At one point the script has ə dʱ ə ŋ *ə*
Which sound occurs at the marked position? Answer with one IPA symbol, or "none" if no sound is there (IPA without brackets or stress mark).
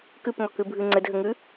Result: ʉ